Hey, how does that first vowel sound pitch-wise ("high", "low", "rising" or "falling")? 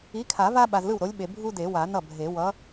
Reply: rising